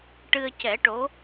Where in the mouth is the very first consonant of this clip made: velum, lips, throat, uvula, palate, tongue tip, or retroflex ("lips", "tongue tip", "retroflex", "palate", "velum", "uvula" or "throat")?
retroflex